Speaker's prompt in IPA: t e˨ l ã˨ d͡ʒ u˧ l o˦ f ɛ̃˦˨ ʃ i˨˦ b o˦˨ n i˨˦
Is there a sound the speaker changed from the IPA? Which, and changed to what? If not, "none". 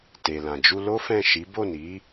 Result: none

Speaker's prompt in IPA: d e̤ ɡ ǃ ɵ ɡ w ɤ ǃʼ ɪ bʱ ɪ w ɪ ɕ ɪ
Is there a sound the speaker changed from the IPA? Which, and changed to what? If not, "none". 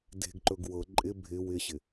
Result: none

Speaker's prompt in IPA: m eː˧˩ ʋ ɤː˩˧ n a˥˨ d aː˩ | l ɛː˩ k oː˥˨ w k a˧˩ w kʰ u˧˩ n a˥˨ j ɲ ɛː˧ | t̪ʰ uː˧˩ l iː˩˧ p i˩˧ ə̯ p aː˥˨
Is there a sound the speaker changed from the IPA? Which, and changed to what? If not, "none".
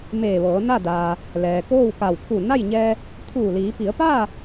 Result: none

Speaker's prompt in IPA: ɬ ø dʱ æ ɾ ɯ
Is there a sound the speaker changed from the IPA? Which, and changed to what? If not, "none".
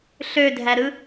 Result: none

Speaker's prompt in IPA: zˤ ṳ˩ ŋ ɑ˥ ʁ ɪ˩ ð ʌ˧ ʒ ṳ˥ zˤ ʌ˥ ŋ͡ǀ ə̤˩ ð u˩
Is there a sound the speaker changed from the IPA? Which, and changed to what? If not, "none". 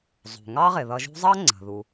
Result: none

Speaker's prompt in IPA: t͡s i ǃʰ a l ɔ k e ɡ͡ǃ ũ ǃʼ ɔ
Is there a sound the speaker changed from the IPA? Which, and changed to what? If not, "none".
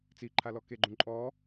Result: none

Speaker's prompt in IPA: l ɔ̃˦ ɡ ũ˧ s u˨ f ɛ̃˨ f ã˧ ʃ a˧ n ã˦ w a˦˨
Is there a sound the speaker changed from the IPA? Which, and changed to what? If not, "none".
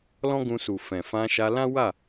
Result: n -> l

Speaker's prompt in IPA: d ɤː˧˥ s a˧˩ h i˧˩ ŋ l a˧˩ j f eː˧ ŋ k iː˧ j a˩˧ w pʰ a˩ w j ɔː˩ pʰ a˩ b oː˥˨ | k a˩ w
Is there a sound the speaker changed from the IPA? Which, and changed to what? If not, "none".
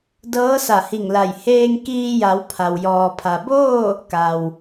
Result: f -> h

